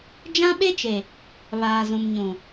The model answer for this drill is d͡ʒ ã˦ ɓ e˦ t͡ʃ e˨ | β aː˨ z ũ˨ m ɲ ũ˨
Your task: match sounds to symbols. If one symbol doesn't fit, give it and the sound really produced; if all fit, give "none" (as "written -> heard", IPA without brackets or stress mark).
none